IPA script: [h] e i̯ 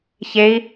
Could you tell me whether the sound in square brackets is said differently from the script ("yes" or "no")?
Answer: yes